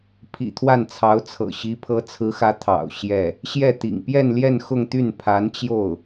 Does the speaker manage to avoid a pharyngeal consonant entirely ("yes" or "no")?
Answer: yes